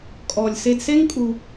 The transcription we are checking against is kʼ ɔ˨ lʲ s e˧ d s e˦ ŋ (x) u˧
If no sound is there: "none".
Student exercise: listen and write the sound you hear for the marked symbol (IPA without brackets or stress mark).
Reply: kʼ